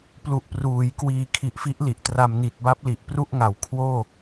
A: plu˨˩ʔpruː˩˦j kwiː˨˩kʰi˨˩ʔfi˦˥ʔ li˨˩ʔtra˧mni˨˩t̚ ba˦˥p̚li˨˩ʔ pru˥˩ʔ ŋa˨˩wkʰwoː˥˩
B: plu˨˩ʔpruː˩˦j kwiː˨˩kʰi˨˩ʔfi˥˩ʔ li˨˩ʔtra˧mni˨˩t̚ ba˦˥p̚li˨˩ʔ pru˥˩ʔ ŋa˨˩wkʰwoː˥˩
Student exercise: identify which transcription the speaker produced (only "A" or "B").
A